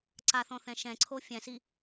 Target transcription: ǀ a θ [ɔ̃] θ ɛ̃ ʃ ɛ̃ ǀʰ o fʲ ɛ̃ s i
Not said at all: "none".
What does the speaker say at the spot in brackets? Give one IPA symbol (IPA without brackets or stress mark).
ɔ̃